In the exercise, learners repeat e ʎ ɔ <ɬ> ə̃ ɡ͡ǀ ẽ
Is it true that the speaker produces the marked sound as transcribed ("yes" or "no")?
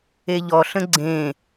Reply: yes